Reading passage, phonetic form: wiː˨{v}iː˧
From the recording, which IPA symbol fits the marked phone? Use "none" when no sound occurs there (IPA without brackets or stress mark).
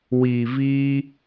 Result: v